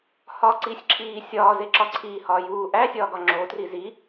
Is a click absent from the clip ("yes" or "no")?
no